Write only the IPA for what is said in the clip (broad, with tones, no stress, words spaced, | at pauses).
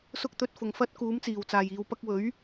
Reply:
sʊ˥k̚t̪ɵ˧t̚fʊ˨˩ŋfɐ˥t̚ kuː˨˥mt͡siː˨˩wt͡saː˨˩jiː˨w pɐ˧k̚wɵ˨˥ɥ